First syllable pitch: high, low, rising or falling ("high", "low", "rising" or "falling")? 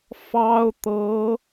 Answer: high